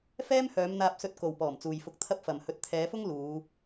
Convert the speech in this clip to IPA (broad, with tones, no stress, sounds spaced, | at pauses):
f ɛː˥ m h œː˨˧ m n̪ aː˧ p̚ s ɵ˧ t̚ k o˨ w p ɔː˨˩ m t͡s uː˨ j f ʊ˧ k̚ t̪ʰ ɐ˥ p̚ f ɐ˨ m h ɵ˧ t̚ t̪ʰ ɛː˨˧ f ʊ˥ ŋ l uː˨˧